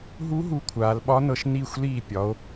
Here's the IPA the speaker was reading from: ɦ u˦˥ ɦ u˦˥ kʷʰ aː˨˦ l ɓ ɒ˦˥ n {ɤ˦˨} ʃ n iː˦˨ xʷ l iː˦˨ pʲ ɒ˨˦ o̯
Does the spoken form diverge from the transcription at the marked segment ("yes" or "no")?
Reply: no